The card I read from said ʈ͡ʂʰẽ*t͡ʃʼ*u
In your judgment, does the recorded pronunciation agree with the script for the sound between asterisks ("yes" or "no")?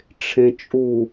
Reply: yes